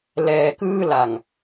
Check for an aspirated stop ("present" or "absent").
absent